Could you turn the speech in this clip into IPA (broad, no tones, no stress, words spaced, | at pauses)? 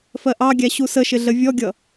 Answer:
fɜʔɑɡʲæ ɕusəʃɪ ɮəvʲɔɡʲʌ